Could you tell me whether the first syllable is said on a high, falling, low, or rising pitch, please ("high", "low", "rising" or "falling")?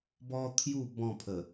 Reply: high